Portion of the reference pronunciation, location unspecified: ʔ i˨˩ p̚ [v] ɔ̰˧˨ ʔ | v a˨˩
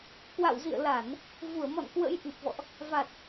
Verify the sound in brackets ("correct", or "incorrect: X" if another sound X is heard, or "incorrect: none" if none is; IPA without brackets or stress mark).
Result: correct